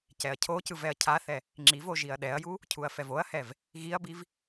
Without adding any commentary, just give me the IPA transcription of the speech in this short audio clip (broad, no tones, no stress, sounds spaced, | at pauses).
c ɛ ɐ̯ cʰ o c ɯ v ɛ ɐ̯ cʰ a θ ɛ | ŋ͡ǁ i v o ʒ i ɐ̯ ɗ ɛ ɐ̯ j u | cʰ u ɐ̯ f ɛ v o ɐ̯ h ɛ v | ɣ i ɐ̯ b i v